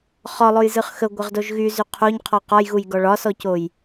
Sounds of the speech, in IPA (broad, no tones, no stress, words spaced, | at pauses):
χɒlˠojzɯχ xəɡʷəʁdoʒ ɣyzy qʰoɲqʰɔ qɒjɣujɡɔ ɭɒsɔcoj